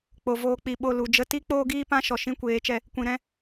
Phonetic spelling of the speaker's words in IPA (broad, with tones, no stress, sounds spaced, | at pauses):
k͡p o˨ v oː˧ k͡p i˨ ɓ o˦˨ l u˨ d͡ʒ ə˧ t i˦ k͡p oː˦ ɡ iː˦ p ã˦ ʃ ɔ˨ ʃ ĩ˦ kʷ eː˨˦ t͡ʃ ɛ˧ | kʷ ĩ˨ ɾ ɛ̃˧